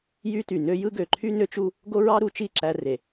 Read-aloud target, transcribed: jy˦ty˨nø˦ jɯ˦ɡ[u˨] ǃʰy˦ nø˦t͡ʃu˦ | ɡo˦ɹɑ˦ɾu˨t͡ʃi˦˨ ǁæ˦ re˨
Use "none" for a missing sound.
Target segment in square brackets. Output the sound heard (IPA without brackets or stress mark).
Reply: ø˨